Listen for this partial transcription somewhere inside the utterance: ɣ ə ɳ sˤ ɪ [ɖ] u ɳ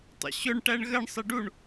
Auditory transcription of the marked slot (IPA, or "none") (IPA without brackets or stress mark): ɖ